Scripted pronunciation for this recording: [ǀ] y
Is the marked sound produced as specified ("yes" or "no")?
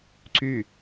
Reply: yes